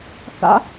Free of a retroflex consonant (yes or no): yes